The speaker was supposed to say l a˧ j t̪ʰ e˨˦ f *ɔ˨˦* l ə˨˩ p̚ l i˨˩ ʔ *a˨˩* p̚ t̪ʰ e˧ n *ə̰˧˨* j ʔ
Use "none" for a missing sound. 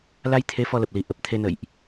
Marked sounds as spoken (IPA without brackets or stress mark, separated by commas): ɔ˧, ə˨˩, ə̰˧˨